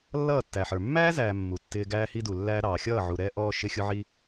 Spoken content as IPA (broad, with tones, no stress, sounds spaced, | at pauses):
lː ʌː˦˨ tː æ˨ ħ ə˞˨ mː æː˦ z æː˨ mː u˨ tː ɪː˧ ɡ æː˧ h i˧ d u˨ lː æː˧ ɾ ɑː˨ xʲ ʌː˦˨ ʕ u˨ ɾ ɛː˧ ʔ ɔː˧ ʃ ɪ˧ xʲ ʊ˧ ʕ i˧